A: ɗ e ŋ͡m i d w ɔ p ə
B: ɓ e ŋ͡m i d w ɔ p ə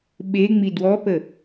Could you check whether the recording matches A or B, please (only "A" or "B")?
B